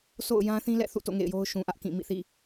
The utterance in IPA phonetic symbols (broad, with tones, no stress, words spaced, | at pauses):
sʰo̰˦˨ʊ̯ jã˦θĩ˦ lɛ̰˦˨θṵ˦˨to̰˦˨ ŋḛ˦˨ɪ̯jo˦ʊ̯ ʃũ˨ʔä˦ʔkĩ˦˨ mḭ˦˨θḭ˦˨